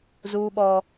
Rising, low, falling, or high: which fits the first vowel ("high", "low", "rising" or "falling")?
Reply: high